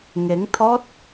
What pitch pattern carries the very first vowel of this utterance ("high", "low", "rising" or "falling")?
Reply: rising